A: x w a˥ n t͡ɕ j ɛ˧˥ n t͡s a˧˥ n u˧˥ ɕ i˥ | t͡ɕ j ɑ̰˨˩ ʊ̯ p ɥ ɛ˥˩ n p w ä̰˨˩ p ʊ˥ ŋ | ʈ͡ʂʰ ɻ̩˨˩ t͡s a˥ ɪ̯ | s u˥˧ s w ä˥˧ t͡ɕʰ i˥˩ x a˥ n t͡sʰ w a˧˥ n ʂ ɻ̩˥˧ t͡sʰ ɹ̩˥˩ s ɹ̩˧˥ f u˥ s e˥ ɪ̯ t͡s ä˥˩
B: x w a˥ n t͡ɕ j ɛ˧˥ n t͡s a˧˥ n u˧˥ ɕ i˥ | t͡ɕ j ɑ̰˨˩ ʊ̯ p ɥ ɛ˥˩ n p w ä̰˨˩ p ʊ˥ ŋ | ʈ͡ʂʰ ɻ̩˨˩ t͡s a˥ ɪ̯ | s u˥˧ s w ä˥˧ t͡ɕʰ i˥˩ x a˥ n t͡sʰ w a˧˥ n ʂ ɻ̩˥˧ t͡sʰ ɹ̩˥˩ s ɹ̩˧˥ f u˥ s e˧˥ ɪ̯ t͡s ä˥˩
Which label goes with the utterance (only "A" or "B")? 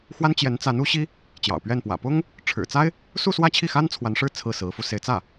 B